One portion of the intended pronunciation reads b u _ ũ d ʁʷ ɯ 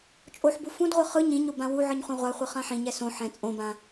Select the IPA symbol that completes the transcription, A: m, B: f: B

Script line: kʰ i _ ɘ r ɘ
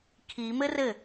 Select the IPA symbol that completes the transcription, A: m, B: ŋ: A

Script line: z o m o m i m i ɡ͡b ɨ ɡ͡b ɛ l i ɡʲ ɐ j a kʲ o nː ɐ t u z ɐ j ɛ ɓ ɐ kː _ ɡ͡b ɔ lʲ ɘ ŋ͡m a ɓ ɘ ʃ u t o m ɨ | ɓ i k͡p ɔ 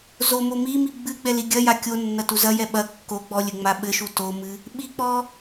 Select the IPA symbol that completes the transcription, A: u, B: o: B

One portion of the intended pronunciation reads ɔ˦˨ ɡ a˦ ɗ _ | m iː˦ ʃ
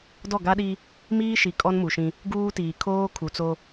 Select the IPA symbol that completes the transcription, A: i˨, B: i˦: B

